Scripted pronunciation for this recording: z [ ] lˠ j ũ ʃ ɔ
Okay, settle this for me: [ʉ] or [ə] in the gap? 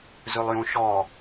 ʉ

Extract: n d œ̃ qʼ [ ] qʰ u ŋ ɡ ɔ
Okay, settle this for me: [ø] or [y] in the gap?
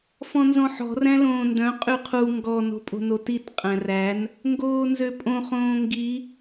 y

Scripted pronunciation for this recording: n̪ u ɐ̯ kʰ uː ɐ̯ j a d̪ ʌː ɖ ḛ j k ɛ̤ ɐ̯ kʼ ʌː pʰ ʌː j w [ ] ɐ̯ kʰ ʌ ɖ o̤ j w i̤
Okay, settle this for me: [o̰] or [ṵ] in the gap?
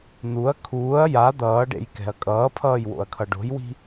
o̰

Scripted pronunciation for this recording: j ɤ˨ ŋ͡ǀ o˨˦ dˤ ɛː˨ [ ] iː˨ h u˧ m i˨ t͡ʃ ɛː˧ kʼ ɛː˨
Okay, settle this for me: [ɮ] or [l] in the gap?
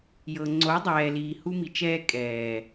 l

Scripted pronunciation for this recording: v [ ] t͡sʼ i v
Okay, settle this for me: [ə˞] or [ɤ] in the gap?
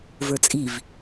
ə˞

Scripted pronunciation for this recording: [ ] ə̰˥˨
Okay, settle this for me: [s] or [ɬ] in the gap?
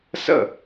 s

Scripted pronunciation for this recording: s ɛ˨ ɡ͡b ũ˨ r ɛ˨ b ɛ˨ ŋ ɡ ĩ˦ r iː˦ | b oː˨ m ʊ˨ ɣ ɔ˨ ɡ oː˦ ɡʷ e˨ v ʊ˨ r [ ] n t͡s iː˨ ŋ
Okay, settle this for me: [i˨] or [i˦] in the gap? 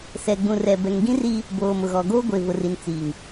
i˨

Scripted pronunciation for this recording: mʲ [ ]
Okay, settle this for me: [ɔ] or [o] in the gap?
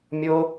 o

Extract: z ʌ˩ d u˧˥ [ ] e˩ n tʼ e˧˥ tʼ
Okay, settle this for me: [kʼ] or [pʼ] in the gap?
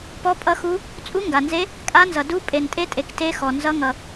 pʼ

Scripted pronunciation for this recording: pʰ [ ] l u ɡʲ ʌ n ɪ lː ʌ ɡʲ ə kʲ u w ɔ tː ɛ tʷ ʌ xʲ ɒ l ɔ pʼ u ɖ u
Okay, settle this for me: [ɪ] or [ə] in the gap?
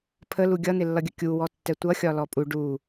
ə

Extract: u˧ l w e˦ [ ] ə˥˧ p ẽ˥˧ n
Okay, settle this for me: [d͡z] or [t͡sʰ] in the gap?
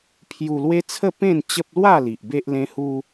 t͡sʰ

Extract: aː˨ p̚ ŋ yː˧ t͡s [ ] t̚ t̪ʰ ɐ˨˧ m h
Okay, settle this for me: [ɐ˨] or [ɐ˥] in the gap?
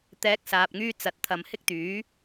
ɐ˨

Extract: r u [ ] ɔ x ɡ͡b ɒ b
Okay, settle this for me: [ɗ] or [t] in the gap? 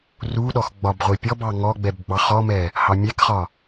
ɗ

